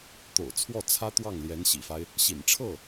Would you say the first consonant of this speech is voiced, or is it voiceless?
voiceless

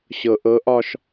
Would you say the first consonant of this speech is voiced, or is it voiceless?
voiceless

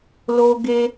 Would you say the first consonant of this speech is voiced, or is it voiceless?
voiced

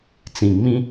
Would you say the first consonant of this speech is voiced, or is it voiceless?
voiceless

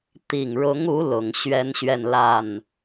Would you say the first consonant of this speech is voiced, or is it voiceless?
voiceless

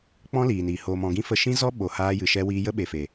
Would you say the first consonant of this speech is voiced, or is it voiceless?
voiceless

